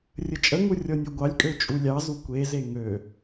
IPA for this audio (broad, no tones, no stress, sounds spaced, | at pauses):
rʲ ə t͡ʃʼ ə ŋ u rʲ ɔ nʲ u ɡʷ ɑ lʲ kʼ ø t͡ʃʼ u lʲ ɑ z u kʷ e z e ŋ ø